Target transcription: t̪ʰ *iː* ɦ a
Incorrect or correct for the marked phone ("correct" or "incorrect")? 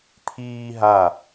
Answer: correct